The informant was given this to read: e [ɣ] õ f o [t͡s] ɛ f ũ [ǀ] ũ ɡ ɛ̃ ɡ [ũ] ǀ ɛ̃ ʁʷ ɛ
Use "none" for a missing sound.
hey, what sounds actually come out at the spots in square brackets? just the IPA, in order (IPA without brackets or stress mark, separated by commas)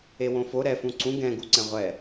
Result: w, ɾ, ǀ, u